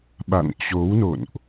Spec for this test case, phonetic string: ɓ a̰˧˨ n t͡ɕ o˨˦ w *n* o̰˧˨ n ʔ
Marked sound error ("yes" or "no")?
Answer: no